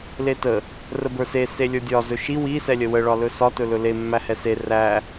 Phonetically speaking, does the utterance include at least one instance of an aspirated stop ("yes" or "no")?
no